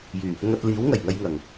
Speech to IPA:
j yː˨˩ | ŋ ɐ˧ t̚ l iː˨˥ w ŋ ɐ˨˩ j ŋ ɐ˧ j ŋ ɐ˨˩ ŋ

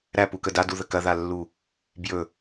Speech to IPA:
ɾ æ p u k ə d a d u ð ə k ɐ ð a lː u | b j ɵ

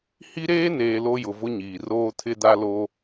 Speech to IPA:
h i˦ ɾ eː˦ n eː˨ l o˦ j ʊ˨ v ʊ˦ ɲ iː˨ r oː˦ tʰ ɪ˦ d a˦ l o˦

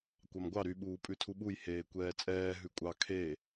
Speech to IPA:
kʷ ɑ m ɡʷ ɑ ɾ y ɓ uː pʼ ʉ tʰ u ɓ u j h eː kʷ ɛː t͡sʼ ɛː ɦ ʉ kʷʼ ɑ kʰ e

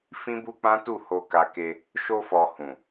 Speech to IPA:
f ĩ˦ b u˦ k͡p ã˦ t u˦˨ h o˧ k a˧ k e˧ | ʃ o˧ f ɔ˨ h ũ˨

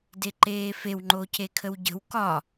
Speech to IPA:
d e ǃ eː f e w ŋ͡ǃ o c e kʰ ə w ɟ ə̤ w k ɒ

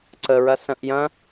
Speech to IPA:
ǀ ə ɹ ɐ s ɐ̃ ʔ j ɐ̃

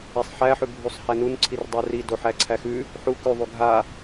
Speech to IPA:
ɛ sˤ ħ æ ħ ʉ bʱ u sˤ h æ n u n ǀʰ i r dˤ ə˞ r i d o ħ æ ǀʰ æ x ʉ | ħ u k ʉ ðˤ u ɡʱ a

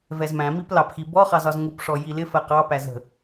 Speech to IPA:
v ɛ z m æ̃ m i p l ɑ p x i b ɔ χ ɑ z ɒ z ŋ u p ʂ ɔ j i l ɪ f ɜ q ɑ p æ z ə̤

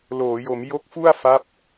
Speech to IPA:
l oː˩˦ j o˩˦ m j o˦˥ k̚ f u˥˩ a̯ f a˦˥ p̚

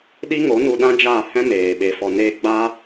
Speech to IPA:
ɗ i˦ ŋ o˨˦ n u˧ ɗ ã˦ d͡ʒ aː˦˨ h ɛ̃˦ m eː˨ ɓ e˨ f ɔ˨ n eː˧ ɡ͡b aː˦

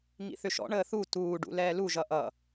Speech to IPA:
ŋ ḭ θ ʏ ʃ ɔ̰ ɳ əː θ u t uː ɖ ṵ l ɛː l u ʒ ʌ ʔ ʌ

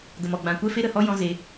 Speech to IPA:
ɡ ə˨ m ɔ˨ ɡ͡b ã˧ kʷ ɛ˦˨ f e˦ ɾ ə˨ h ɔ˦ j ɔ̃˦ z e˧

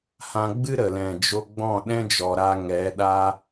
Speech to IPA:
h ã˧ ɡ͡b ɨ˦ ɾ ə˨ l ɛ̃˨ d͡ʒ o˧ ɡ͡b ɔ̃˦˨ ɗ ɛ̃˦ d͡ʒ ɔ˨ ɾ a˧ ŋ ɛ˨˦ ɗ a˦

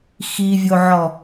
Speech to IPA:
x i vʲ o ʕ ɔ

